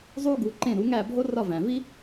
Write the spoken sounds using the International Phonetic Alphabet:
zˤ u˥ ɡ u˩˥ ǃ ẽ˥˩ ɾ u˩˥ ŋ æ˥˩ bʱ o˥ r ɒ˥˩ v æ̃˩ v i˥

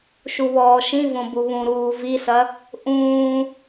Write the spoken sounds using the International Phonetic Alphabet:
ʃ u β ɔː ʃ ĩ v õ b u β ũ ɾ uː v i s ɐ | ʔ ũː

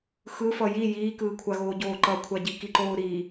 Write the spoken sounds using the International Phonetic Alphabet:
x ɯ f ʌ j i j iː k ɯː kʷʰ a ɣ oː ɟ oː ǃ ʌ kʷʰ a ɟ i k i ǃ oː ɾ iː

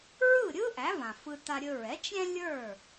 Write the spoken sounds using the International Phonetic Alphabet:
ɹ ɯ˥˩ ɾʲ ɯ˥ ʔ æ˩˥ v ã˩ f ɯ˧ t a˧ ɾʲ ɵ˧ ɹ ɛ˩˥ t͡ʃ ɾʲ ɛ̃˥ lʲ ə˞˥˩

